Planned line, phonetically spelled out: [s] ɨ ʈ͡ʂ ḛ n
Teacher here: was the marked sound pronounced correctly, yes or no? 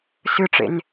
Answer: yes